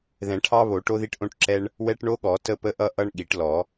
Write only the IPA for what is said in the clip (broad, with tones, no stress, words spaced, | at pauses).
ðɛ̃˨˩˦ʈʰɑ˦βo˨˩˦ ʈo˦ði˦ʈʔõ˦ʈǁɛ˦ɳ | wɛ˦ʈɳo˦ɠɔ˨˩˦ tə˦pə˦ʔʌ˦ ʔʌ˦ɳ ɠi˨˩˦ʈlɔ˨˩˦